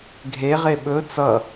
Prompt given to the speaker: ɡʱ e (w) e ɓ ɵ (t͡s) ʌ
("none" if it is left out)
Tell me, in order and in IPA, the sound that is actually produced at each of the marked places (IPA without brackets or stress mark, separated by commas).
ʁ, t͡s